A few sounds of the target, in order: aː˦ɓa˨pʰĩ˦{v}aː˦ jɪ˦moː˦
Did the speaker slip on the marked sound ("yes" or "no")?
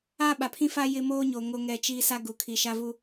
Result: yes